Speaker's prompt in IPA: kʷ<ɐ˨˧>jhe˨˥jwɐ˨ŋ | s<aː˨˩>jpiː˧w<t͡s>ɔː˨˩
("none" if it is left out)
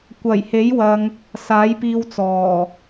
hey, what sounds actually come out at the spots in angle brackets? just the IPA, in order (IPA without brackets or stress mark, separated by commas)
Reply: ɐ˨˩, aː˨˥, t͡s